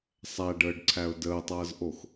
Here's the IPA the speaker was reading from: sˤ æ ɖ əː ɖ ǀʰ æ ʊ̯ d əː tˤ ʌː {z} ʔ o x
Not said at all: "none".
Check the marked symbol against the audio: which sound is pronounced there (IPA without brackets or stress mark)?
z